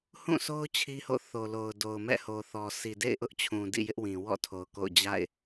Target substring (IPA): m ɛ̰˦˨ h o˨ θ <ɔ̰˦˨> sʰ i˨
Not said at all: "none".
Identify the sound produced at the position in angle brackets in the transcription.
ɔ˨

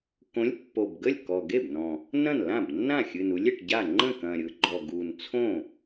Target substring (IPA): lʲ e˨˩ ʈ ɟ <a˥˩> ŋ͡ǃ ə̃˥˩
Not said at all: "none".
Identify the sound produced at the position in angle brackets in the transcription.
a˥˩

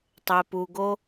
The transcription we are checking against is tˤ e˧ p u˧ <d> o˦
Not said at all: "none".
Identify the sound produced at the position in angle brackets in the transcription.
ɡ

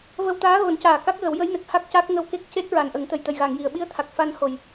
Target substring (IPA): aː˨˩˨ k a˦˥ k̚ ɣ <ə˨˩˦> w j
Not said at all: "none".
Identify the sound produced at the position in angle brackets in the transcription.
ə˨˩˦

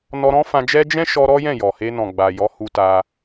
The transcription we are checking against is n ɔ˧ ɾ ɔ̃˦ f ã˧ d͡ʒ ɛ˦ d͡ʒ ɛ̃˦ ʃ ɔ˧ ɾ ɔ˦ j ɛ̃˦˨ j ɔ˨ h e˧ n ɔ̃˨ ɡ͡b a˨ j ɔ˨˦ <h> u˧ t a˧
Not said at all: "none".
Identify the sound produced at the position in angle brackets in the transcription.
h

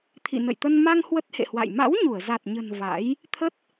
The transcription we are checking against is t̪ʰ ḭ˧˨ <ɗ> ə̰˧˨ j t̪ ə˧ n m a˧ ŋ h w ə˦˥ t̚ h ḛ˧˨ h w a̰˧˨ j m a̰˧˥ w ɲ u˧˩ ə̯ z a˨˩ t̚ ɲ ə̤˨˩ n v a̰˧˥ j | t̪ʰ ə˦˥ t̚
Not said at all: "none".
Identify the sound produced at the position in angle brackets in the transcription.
n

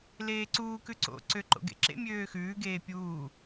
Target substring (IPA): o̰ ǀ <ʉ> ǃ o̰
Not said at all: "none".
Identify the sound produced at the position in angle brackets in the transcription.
ø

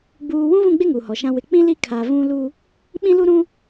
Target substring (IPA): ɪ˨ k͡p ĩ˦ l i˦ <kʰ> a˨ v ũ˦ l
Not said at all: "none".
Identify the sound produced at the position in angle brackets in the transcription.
kʰ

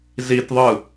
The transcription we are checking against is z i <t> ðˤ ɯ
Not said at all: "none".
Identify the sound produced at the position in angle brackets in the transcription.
t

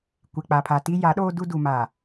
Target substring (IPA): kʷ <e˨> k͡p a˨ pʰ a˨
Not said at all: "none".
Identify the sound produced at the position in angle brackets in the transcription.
e˨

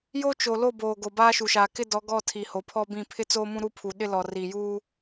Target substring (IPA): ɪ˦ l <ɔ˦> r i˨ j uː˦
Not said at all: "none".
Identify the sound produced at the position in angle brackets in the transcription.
ɔ˨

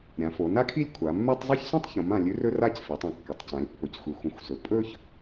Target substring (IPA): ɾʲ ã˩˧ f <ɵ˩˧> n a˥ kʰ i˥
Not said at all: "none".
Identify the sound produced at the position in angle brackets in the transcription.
o˩˧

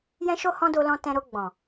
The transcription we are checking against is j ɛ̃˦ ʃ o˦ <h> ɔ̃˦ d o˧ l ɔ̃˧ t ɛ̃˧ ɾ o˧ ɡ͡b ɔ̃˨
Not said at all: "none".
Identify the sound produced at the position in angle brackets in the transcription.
h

